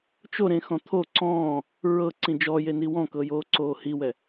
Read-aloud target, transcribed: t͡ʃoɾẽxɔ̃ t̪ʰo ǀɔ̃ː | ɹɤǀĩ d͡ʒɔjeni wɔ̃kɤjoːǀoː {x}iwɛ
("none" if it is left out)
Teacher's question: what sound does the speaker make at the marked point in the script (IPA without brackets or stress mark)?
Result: h